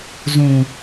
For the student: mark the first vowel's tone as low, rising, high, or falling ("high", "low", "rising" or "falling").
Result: low